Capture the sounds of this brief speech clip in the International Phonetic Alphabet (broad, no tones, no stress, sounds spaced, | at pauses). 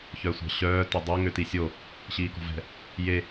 ç œ sʷ ɑ̤ ɕ œː t ø dˤ ø ŋ ø t i sʲ o | ɕ iː k ɔ̤ v ɛ̤ | j e